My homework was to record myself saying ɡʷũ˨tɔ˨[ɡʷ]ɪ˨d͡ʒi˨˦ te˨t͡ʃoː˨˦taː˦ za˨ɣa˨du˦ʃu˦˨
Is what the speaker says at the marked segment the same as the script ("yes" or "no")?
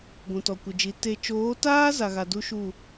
no